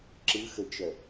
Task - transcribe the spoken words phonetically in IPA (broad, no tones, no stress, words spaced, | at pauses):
ǁɯ xət͡ʃœ